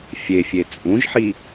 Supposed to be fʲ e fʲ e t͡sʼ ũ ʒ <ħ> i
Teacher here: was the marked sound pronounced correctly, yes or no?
yes